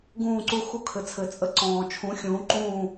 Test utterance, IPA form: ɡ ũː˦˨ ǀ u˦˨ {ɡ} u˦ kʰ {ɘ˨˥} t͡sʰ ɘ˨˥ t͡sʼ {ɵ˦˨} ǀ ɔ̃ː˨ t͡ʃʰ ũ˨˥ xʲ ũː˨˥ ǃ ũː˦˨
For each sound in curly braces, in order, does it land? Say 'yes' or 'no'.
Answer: no, yes, no

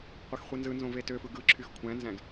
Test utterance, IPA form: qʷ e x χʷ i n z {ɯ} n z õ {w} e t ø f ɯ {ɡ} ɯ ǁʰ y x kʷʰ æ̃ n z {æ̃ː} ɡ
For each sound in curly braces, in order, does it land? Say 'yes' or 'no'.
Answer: yes, no, yes, no

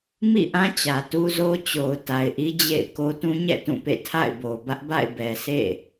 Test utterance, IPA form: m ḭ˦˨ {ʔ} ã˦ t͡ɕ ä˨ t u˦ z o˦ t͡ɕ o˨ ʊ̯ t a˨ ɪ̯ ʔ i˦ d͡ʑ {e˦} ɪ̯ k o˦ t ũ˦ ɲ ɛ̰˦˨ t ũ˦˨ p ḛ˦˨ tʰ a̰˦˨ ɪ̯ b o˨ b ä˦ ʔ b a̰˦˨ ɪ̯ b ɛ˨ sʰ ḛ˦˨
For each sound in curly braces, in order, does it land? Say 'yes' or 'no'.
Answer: yes, no

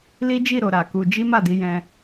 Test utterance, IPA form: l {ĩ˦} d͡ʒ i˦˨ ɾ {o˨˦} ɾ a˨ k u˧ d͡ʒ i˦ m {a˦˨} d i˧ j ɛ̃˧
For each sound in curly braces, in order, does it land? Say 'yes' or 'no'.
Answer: no, no, yes

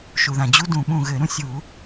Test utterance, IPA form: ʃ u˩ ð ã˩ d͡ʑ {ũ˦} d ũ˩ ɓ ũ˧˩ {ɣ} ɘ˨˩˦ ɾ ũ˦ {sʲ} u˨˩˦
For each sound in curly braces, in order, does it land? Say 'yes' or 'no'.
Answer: no, yes, yes

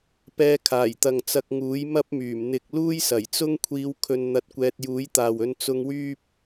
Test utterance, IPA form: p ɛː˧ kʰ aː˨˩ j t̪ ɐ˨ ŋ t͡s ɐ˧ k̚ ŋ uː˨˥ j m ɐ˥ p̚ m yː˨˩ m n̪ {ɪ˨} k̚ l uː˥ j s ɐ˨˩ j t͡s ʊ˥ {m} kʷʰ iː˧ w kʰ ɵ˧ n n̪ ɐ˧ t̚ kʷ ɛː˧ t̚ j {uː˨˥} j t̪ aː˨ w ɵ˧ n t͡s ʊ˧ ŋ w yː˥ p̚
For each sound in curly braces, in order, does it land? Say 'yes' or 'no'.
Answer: yes, no, yes

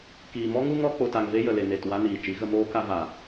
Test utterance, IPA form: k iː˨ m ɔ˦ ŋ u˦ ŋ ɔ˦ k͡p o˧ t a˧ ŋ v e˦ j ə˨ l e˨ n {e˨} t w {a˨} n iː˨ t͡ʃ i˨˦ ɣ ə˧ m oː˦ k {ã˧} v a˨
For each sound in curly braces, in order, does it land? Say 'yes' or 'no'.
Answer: yes, no, no

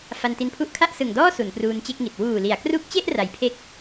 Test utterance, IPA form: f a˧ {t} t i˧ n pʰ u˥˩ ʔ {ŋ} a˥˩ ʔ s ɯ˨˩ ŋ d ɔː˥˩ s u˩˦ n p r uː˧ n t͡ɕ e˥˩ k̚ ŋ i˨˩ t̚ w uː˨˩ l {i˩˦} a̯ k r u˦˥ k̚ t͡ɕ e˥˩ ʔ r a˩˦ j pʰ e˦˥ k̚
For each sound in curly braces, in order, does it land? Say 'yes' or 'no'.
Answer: no, no, yes

